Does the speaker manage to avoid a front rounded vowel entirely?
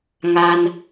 yes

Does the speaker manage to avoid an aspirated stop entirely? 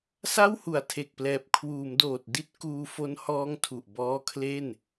no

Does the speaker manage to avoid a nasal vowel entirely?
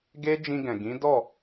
no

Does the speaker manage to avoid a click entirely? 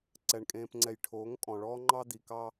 no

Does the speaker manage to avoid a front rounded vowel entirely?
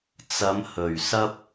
yes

